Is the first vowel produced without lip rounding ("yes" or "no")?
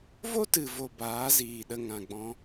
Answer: no